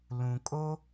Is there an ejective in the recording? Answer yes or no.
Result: yes